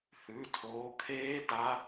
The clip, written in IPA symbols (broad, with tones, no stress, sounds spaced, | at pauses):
θ ʉ˩˧˩ tʰ oː˨˦ kʰ eː˦˥ d a˦˥